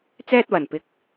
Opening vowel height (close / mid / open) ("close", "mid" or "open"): mid